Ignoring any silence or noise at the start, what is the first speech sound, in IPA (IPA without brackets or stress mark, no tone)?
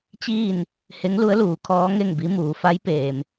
t͡ɕ